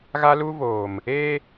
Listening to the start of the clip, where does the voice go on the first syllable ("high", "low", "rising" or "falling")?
high